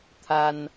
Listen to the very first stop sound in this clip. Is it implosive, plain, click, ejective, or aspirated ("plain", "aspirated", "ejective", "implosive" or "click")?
aspirated